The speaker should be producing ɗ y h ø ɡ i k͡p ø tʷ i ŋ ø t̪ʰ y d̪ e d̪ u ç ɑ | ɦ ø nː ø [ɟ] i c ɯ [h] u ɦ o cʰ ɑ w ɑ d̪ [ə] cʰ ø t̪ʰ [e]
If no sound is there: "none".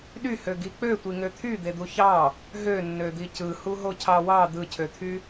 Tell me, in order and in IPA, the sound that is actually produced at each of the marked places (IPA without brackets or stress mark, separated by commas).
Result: d̪, h, ɯ, y